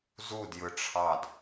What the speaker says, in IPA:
z u d j ɯ ʈ͡ʂʰ ɑ d

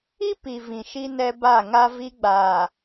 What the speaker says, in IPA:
i˦ p i˨ v ĩ˨ ʃ i˦ n ɛ˦ b a˦˨ ŋ a˦ v i˦ ɡ͡b aː˨

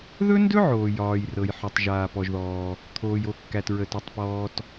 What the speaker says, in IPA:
ð ɵ˥ n d ɵ˥ ʕ oː˩ j ɒː˩ j r ɤ˩ j ħ ɵ˩ tˤ ʒ aː˩ p ɔ˩ ʒ ð ɔː˩ | t̪ʰ oː˩ j o˩ kː æ˩ t ɹ ə˩ t ɵ˩ tˤ p ɔː˩ t

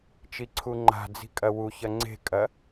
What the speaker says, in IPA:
t͡ʃ i ǀʰ u ŋ͡ǃ a̤ d͡z i̤ kʼ ɐ w u ç ɐ ŋ͡ǀ e̤ kʼ ɐ

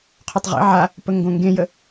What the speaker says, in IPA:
qʰ o tˤ ʁ ḭ ʕ a | p ə ŋ ɡ õ ŋ ɡ ẽ j ə

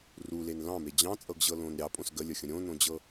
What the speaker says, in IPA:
r u l e n l ɑ̃ m e d͡ʑ ɑ̃ t͡sʼ ɤ ɡ ʑ ɤ l õ n ɾʲ ɑ pʼ õ s ɡ ə lʲ ə xʲ ə̃ ɾʲ õ n õ d͡ʑ ɤ

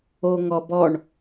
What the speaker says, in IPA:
o ŋ ɔ b ɔ ɳ

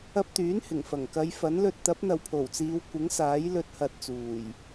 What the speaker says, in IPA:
ɐ˧ p̚ t̪ yː˨˥ n h ɪ˨˩ ŋ f ɐ˨˩ ŋ k ɐ˨˧ j f ɐ˨˥ n l ɵ˧ t̚ t̪ ɐ˨˥ p̚ n̪ ɐ˨ w pʰ o˨˩ w t͡s iː˨˧ w kʷ ɪ˨˥ ŋ s aː˨˥ j l ɵ˧ t̚ h ɐ˧ t̚ t͡s uː˨˩ j

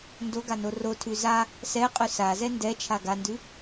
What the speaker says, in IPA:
n d o ɡ a n o r o tʰ ʉ z a | s ɛ qʼ ʉ s a z ɛ n d ɛ t͡ʃʰ a ɡ a n d ʉ

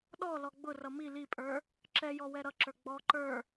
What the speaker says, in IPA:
ɗ ɔ l ɔ ɡ͡b ʊ r ʌ m i l i pʼ ə˞ | ǁ ɛ j ɔ w ɛ ɾ ʌ ǁ ə˞ ɡ͡b ɔ ǃ ə˞

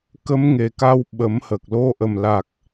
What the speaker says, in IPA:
k ə˧˥ m ŋ e˨˩ k a˧ w ɓ ə˨˩˦ m h ə˨˩ k̚ l o˧ ʔ ə˨˩ m l a˨˩ k̚

